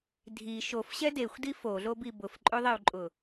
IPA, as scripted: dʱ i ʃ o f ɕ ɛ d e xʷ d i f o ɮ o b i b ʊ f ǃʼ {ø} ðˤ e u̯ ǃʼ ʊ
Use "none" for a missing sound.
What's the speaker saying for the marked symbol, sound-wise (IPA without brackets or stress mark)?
ø